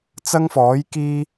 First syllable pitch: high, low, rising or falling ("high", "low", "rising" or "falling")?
high